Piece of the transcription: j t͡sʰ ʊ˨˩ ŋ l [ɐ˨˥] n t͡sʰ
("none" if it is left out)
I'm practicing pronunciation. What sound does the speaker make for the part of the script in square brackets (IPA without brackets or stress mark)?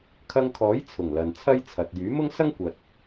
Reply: ɐ˨